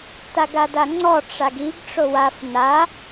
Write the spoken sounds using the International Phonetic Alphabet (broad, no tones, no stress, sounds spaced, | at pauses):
t a ɡ a d a ŋ͡ǀ ɔ ʈ͡ʂ a ɡ i ɡ ʈ͡ʂ o w a f n a